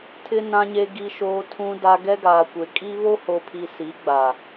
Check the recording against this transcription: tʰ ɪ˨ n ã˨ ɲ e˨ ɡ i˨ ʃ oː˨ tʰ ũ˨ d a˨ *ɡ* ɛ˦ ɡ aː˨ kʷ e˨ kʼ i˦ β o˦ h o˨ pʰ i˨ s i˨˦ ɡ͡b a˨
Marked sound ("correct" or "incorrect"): correct